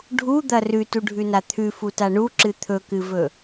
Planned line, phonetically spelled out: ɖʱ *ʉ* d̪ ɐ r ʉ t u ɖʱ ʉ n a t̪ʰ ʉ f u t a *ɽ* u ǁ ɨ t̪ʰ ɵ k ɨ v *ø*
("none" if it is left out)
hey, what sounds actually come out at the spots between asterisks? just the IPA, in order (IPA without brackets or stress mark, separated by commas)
u, ɳ, ɵ